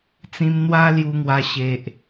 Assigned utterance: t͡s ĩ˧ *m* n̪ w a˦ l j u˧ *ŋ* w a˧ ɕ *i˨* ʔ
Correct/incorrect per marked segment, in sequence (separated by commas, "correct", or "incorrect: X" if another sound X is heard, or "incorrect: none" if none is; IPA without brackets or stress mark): correct, correct, incorrect: e˨